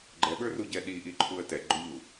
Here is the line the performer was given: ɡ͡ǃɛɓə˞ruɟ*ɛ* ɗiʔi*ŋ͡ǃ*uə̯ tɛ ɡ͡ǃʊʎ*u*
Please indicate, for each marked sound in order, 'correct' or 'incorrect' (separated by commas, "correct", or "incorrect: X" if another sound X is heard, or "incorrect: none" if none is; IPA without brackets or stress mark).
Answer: correct, incorrect: ǃʰ, correct